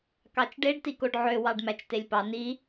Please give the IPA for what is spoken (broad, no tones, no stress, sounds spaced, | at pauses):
k ɑ t͡ʃ ɖ e ɖ t i k o ɖ ʕ ø w ɑ ɖ m æ t͡ʃ t e lʲ p ɑ n i